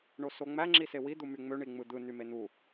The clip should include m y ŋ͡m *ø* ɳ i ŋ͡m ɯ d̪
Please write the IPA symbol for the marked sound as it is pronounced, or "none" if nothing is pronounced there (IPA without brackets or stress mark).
ø